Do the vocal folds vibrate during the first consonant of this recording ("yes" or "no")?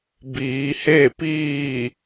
yes